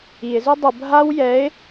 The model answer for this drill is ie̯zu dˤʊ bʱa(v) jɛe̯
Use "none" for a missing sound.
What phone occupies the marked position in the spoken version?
w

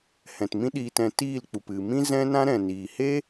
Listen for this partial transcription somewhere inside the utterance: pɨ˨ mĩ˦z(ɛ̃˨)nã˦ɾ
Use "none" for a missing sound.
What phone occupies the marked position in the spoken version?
ɛ̃˦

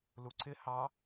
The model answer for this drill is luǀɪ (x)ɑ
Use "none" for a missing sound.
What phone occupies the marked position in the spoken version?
h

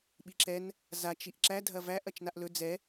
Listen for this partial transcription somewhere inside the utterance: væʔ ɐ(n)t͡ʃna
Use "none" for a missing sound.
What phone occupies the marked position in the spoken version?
none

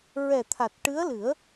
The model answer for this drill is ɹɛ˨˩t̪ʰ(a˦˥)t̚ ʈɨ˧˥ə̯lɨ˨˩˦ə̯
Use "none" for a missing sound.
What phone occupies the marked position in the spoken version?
a˨˩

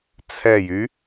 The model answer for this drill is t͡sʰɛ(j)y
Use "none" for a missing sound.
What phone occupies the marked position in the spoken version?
j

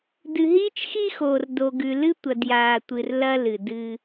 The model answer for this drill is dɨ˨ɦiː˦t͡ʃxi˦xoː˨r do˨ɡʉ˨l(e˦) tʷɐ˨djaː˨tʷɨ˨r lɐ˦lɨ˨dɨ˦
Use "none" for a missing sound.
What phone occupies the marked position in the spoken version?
ɨ˦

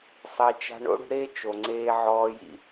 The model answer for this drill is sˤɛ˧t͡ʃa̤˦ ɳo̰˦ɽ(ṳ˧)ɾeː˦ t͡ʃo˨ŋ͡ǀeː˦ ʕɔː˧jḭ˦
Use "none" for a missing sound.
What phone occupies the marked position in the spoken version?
ṳ˧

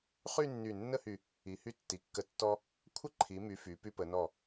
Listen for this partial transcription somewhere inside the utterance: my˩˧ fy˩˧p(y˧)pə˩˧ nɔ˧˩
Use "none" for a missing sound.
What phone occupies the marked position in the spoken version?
y˧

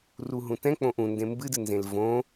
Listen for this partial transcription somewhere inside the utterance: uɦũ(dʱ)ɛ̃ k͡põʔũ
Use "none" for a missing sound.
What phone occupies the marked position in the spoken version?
t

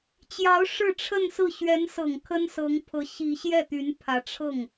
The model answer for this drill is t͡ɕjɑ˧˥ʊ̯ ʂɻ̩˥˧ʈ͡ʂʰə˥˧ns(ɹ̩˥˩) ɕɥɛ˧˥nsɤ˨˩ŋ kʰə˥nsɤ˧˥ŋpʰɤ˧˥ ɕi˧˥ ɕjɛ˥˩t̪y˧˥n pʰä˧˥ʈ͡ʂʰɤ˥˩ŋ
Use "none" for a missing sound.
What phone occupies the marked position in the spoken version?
ɹ̩˥˩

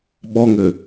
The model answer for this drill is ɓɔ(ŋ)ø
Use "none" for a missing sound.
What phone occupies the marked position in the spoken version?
ŋ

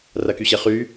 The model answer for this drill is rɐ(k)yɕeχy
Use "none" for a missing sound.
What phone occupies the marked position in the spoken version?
k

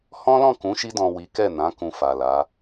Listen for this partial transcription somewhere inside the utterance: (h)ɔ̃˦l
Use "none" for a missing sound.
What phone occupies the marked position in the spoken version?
h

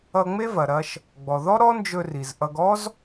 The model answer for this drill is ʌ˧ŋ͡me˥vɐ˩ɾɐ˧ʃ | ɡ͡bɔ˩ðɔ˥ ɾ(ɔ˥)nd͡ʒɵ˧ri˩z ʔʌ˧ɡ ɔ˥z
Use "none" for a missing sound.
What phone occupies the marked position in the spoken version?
ɔ˥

